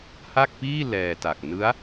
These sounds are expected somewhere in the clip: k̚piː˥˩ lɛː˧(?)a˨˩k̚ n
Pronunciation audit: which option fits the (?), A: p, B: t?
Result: B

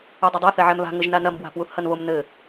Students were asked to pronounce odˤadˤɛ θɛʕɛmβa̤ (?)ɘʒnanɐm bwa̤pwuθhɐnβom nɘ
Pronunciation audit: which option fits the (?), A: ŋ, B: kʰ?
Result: A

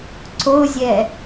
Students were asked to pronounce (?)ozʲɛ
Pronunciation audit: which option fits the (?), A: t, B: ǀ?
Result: B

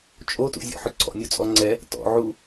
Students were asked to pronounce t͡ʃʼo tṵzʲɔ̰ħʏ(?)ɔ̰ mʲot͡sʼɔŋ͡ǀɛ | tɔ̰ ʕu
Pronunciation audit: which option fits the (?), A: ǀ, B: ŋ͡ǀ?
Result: A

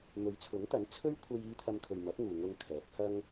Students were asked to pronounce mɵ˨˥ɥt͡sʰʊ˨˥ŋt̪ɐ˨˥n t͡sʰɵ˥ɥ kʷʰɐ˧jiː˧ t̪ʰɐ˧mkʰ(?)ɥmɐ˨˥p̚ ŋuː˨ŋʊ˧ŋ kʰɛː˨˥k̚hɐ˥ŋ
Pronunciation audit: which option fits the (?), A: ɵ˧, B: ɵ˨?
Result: B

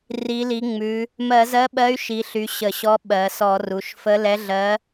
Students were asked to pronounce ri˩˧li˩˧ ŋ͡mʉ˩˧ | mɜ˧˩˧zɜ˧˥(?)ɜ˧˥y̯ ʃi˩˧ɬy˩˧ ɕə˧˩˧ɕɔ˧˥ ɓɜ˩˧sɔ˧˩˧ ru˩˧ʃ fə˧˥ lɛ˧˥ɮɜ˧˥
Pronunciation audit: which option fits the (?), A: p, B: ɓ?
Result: B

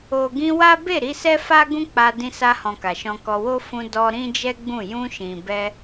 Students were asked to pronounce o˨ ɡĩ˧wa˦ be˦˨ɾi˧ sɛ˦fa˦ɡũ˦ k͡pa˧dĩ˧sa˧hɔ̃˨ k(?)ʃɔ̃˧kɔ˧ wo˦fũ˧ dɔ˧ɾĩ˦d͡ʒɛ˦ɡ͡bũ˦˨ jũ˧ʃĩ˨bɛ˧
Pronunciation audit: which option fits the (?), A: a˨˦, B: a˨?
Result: B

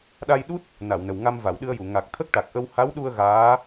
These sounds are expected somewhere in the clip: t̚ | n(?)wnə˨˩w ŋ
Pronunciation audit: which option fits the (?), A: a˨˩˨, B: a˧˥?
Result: A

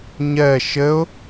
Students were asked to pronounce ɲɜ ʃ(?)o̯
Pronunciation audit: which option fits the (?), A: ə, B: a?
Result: A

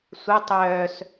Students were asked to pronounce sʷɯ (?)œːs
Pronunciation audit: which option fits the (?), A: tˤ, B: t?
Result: A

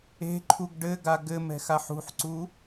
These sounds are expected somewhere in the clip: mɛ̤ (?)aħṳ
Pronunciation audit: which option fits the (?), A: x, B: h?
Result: A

